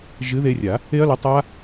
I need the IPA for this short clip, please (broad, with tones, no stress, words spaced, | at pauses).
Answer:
ʒɨ˨˥ðe˧rʲa˨˩˦ | e˦˥ɐ̯lə˨˥tˤa˦˥